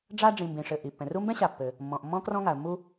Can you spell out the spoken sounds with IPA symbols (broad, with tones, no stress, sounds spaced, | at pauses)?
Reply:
ɖ͡ʐ a˦ ɖ͡ʐ ĩ˨ m b ĩ˩ ʂ ɘ˩ ʔ i˩ pː ɛ̃˩ r u˦ m b ɛ̃˥ ɕ a˨ pː ɘ˩ | mː ɔ̃˩ ʔ mː ɔ̃˦ k r ɔ̃˦ ŋ a˩ ə̯ mː u˦